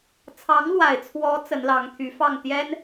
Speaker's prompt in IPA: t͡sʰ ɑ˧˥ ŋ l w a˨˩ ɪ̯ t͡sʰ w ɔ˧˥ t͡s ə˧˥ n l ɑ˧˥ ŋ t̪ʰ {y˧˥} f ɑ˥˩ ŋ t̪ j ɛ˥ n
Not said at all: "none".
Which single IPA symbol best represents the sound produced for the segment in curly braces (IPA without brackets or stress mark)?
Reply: y˧˥